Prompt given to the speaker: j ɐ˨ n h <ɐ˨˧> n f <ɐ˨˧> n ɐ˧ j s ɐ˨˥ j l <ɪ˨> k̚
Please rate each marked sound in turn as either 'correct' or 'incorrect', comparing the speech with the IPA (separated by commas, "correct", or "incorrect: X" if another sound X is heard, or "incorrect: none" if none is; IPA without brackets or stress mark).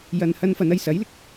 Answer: incorrect: ɐ˧, correct, correct